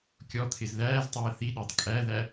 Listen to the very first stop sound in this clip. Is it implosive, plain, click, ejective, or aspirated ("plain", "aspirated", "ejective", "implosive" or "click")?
plain